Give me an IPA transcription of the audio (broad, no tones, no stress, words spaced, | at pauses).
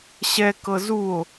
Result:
ɕɛkɤ zuo̯